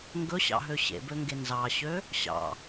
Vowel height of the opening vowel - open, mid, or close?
mid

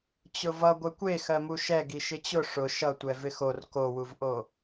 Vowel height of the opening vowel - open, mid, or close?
close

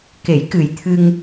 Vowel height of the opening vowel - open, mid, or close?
mid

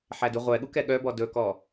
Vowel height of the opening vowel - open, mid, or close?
open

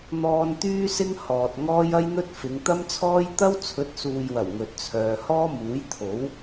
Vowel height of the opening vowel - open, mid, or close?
mid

